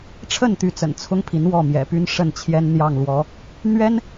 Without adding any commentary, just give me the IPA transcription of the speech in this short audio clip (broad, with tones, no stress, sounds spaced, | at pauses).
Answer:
ʈ͡ʂʰ ə˥˩ n t̪ y˧˥ t͡s ə̰˨˩ n t͡sʰ ʊ˥ ŋ pʰ i˧˥ n w ɔ˥˩ m j ɛ̰˨˩ p y˥ n ʂ ə˥˩ n t͡ɕʰ j ɛ˥ n n̪ j ɑ˥˩ ŋ l w ɔ˧˥ | n̪ ɥ ɛ˥ n